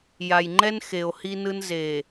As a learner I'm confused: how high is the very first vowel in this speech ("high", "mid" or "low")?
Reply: low